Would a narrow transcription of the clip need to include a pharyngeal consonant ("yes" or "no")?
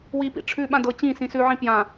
yes